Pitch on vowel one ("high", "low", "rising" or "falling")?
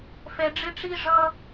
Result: low